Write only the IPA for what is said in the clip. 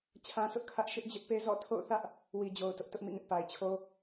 t͡ɕʰã˦sʰʊ˦ʔkʰä˦ʔ ʃɪ˦ʔd͡ʑɪ˦ʔpe˦ zɔ̰˦˨ tʰo̰˦˨ʊ̯θä˦ʔ | wi˨d͡ʑo˨ʊ̯ tʊ˦ʔtʊ˦ʔmḭ˦˨ŋɪ˦ʔ pa˨ɪ̯t͡ɕʰo˦

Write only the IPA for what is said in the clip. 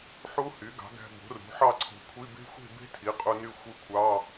ħu˦˥hy˩˥ɡɑ̤˩˥ ɡæ̤˧bo̤˩˥ rṳ˩˥ħɑ˥˧ǀʰo̤˧kʷʰi˧˥˧ be̤˦˥xʷe̤˥˧be̤˦˥ tʰi˩˥qʼu˧ ny˥˧xʷɯ˦˥kʷʰɑ˧˥˧

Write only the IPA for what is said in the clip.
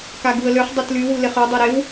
kaɡuə̯løχ dˤœtlywu leχø dˤeɾew

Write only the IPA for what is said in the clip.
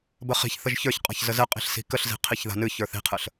bəχi̤çθəʒ çə˞çqʼa̤ç zəzɛqʼi̤ɬ si̤kəɬzi̤ qʰiçða̤nɨçə˞θ i̤qʰəɬ

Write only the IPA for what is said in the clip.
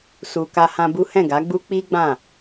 su˨ ka˧hã˧bu˦ hɛ̃˦˨ɡa˨˦ɡ͡bu˦ k͡pi˦ɡ͡bã˦˨

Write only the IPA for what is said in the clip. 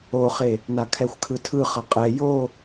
oχe | nakʰɛxʷkʰɯtʰɯ χʌqʼɛ jo

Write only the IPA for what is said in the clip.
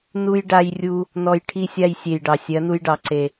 nu˦j ɖa˧jrʲu˧ | nɔ˧j ʈʰi˧sʲa˧j sʲe˨jɖɑ˨ sʲɜ˨˦nu˧jɖɑ˨ ǀe˨

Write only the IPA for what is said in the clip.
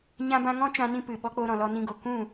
ɲã˦bã˦ ŋɔ̃˦t͡ʃã˧nĩ˧ pɨ˨ɓɔ˧k͡po˧ ɾɔ̃˨lɔ˧nĩ˧ɡo˨ kũ˦˨

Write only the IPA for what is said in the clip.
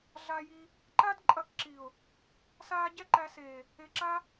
ɮa˧ji˧ | ǃa˦d ǃʼɐ˦˨kǁi˨ʊ̯ | saː˦ɟɛ˦ǃæ˧seː˨ | e˧ǁa˦

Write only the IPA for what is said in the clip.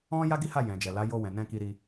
ɔ̃˦ ja˦ɡi˦ha˦˨ jɛ̃˨d͡ʒɛ˨la˨˦ jo˧wɛ̃˨ nɛ̃˧ ki˧ɾi˧

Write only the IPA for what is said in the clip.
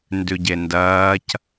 ndʉɟendɐːc

